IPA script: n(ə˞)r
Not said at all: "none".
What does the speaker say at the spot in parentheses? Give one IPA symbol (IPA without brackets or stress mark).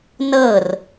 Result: ɤ